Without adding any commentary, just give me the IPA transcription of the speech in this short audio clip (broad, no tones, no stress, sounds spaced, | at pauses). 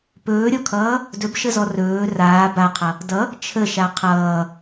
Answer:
p ɵː ɾʲ ɔ kʰ ʌː | d ɵ b ʃ ə z ɔ r ɵː r aː b a qʰ ʌ | d ʌ | t͡ʃʰ ə ʃ a qʰ ʌː